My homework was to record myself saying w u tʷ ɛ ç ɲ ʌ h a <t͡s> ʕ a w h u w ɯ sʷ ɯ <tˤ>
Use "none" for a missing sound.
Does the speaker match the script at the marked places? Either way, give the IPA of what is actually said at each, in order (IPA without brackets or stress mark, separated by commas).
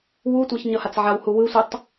t͡s, tˤ